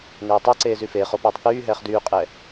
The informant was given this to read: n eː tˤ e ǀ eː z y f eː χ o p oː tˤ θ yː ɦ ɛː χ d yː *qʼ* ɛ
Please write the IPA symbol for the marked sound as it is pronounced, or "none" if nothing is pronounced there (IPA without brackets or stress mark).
qʼ